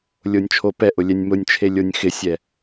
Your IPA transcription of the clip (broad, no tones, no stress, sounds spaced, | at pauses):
lʲ o nʲ t͡ʃʰ o p ɛ ʔ ʊ lʲ ɛ nʲ m ʊ nʲ t͡ʃʰ e lʲ o nʲ x ɪ sʲ ɛ